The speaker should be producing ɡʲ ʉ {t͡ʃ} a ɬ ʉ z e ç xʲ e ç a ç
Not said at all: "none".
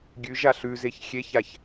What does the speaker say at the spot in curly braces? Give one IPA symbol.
ʒ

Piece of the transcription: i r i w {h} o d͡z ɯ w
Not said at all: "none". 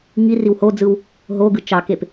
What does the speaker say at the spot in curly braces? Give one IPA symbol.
h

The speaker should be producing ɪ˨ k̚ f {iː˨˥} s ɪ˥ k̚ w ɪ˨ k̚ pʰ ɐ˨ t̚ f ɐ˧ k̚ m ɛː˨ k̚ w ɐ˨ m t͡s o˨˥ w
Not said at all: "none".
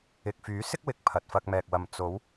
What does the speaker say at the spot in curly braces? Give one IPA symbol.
yː˨˥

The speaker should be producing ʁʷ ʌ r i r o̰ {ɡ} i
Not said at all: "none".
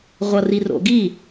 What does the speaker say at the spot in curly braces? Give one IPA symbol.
ɡ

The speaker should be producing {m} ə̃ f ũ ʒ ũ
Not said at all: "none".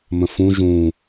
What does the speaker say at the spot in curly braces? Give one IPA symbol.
m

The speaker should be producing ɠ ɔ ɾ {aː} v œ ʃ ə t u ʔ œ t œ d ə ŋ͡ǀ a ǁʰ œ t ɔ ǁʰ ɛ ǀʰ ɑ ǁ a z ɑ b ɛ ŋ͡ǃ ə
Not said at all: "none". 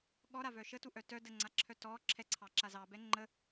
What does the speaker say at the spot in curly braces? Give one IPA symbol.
a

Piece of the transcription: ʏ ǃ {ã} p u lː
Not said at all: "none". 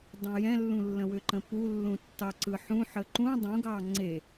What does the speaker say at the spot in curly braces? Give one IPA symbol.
ə̃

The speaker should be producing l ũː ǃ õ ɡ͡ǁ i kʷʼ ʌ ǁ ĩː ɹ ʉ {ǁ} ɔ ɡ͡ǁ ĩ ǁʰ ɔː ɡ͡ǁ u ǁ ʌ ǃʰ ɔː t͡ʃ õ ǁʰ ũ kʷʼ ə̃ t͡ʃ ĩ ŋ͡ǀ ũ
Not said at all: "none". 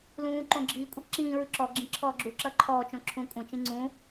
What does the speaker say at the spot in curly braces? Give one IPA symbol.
ǁ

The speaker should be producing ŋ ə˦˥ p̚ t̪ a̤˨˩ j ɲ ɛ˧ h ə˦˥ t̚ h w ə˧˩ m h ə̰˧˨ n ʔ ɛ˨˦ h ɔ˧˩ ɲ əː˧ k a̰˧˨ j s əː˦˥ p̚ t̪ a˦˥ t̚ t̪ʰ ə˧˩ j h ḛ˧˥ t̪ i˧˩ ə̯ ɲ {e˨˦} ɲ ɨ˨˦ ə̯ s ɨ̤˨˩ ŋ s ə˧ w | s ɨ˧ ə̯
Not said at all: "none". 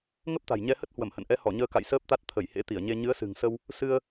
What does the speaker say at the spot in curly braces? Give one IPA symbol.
e˧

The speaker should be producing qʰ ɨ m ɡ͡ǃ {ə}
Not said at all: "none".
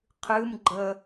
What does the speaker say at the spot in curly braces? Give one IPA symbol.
ə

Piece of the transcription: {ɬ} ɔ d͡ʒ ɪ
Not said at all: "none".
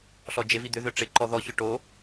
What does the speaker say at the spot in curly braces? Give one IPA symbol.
ɬ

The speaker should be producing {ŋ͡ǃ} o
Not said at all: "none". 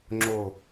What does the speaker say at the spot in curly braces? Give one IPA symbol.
ŋ͡ǁ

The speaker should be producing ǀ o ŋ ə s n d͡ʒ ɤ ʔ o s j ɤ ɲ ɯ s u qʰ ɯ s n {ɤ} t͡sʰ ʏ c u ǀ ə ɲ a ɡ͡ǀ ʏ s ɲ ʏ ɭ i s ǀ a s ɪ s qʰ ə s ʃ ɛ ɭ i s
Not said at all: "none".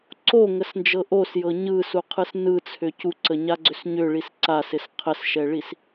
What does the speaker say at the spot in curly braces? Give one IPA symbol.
ɯ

